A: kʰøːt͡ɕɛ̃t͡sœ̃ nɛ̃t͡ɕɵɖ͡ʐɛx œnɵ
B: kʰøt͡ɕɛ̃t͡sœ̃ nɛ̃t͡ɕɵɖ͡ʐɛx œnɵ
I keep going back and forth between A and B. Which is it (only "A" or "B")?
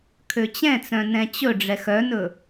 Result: B